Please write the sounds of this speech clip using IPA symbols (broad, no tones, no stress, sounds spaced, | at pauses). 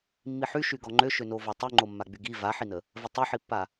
mː i ħ y ʃ y ɡ ɔ ŋ͡ǃ ø ʃ ø n o v ɔ tˤ y ŋ͡ǃ o mː a ɡ͡b y ɡ i v a ħ i n ə | v ə tˤ o ħ i pː a